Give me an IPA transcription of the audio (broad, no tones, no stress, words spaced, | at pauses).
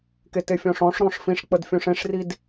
ketefʲɔ̃ʂɔ̃ʂ ɾɔ̃ʂfĩʂ k͡pədfʲõʂẽʂrid